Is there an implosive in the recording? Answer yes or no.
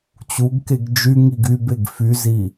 no